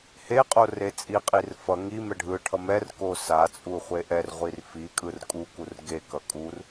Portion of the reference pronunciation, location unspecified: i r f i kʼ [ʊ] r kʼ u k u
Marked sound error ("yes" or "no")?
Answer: yes